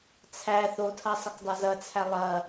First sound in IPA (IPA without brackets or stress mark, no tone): t͡sʰ